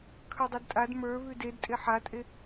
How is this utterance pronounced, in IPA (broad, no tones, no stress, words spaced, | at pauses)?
kʰə˞dˤedtʼad mə˞ βʉdedtʼe ħatʼe